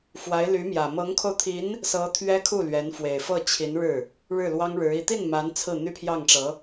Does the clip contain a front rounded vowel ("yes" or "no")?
yes